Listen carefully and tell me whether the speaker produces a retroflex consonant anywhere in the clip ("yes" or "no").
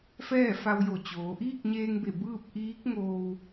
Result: no